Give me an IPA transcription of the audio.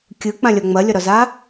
kʲ ɯ k͡p ã lʲ ɒ ŋ͡m ɐ lʲ ɒ ɾ ɒ z a

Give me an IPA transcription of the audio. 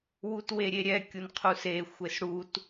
w u t w e ɾʲ e ɾʲ ɛ kʲ u n qʰ u s e xʷ e s ɽ u t

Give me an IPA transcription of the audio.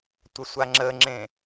tʷ ə sʷ a ŋ͡ǁ ə ŋ͡ǁ ẽ

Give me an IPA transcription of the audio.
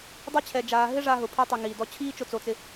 dˤ i˦ t͡ɕʰ ɛ˧ d͡ʒ aː˧ ɦ ɪ˦ ʐ a˦ ɦ ʊ˧ pʰ i˦ tˤ i˧ ŋ iː˨ d ɔ˧ t͡ɕʰ iː˦ t͡ʃ ʊ˧ t͡s o˧ t͡s ɪ˧

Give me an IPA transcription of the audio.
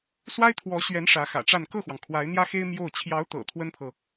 s w a˥ ɪ̯ t̪ʰ w ɔ˧˥ ɕ ɥ ɛ˧˥ n ʂ ä˧˥ x ä̰˨˩ ʈ͡ʂ a˥˧ n k ɤ˥˩ x w ɑ˩ ŋ kʰ w a˧˥ ɪ̯ n̪ j ä˥ x e˥ ɪ̯ m j o˥˩ ʊ̯ t͡ɕʰ j ɑ˧˥ ʊ̯ t̪ ɤ̰˨˩ t̪ʰ w ə˥ n pʰ ɤ˨

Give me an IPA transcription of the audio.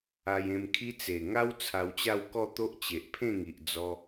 a˧ j ẽ˧ m kʰ i˦ t͡s e˨˩ ŋ a˦ w t͡sʰ a˧ w t͡ɕ a˥˧ w k ɔ˥˧ t̪ o˦ ʔ t͡ɕ e˨ ʔ pʰ ẽ˥˧ ŋ i˨ ʔ d͡z ɔ˧

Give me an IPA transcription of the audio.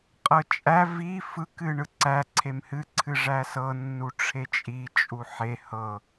qʼ ɤ t͡ʃʼ æ v i f ɯ k ɨ ɳ ɯ ǀ æ ǀʰ e m h ɨ ǀʰ ɨ ʐ æ s ɤ nː u ʈ͡ʂʰ e t͡ʃʼ i t͡ʃʼ u ħ e h ɤ

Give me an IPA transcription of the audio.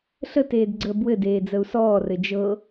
ɬ ə t eː d ɡ͡ǀ əː b w ɘ d eː d͡z ə u̯ s ɔː r ɘ d͡ʒ ɤ

